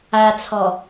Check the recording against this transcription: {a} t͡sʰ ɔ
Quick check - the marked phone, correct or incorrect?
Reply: correct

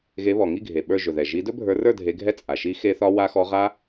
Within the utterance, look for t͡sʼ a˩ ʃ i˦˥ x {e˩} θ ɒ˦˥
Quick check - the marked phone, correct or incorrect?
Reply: incorrect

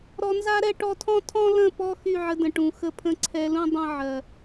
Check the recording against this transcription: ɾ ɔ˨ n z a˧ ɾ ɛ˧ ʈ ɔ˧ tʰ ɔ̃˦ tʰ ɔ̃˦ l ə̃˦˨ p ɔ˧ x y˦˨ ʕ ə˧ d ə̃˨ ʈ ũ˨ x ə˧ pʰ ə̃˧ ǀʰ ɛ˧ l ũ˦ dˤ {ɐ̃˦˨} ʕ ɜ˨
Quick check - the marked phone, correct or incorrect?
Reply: incorrect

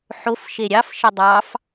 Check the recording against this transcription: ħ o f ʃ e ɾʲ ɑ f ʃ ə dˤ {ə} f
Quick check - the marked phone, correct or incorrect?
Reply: incorrect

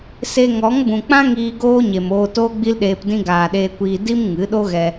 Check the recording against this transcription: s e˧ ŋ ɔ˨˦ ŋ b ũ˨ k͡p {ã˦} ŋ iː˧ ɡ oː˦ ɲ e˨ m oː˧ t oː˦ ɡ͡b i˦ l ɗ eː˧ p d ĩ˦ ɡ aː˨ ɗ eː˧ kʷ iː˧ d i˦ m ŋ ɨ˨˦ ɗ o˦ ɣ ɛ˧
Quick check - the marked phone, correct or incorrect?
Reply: correct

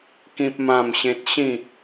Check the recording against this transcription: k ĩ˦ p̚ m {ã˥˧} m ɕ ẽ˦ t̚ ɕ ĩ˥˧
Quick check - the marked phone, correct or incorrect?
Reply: correct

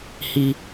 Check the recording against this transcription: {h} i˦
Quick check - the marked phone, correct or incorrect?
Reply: correct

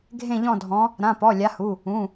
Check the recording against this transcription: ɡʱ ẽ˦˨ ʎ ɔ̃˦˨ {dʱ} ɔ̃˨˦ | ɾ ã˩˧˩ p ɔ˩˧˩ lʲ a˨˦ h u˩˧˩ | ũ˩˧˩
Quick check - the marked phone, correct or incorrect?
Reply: correct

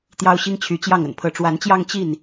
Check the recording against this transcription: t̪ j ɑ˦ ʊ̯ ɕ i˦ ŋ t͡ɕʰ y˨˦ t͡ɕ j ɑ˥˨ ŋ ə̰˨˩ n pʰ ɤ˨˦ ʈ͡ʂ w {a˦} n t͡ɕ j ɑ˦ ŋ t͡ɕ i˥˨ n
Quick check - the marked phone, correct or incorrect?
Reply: incorrect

